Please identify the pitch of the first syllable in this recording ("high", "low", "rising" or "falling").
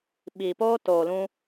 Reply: low